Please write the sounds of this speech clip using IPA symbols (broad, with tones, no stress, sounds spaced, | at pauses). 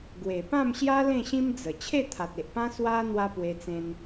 ɡ w e˨˩ p ã˥˧ m ɕ j a˦ l ẽ˥˧ ɕ ĩ˦ m d͡z ə˨˩ t͡ɕʰ e˥˧ t̪ʰ a˨ t̚ e˨ ʔ p ã˦ s w a˦ n̪ w a˦ p w e˧ t͡s ẽ˧ n